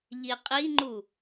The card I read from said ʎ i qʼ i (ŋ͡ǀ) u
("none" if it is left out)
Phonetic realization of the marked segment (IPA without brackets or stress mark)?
ŋ͡ǃ